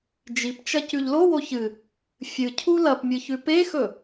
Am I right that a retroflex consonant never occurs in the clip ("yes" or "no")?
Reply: yes